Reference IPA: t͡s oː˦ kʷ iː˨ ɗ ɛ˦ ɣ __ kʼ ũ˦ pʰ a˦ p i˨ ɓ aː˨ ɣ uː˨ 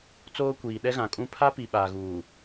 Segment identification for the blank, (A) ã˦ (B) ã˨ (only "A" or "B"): B